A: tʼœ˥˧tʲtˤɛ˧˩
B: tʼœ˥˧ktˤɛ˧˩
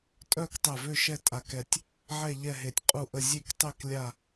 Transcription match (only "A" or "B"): B